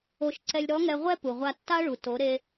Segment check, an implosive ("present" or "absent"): absent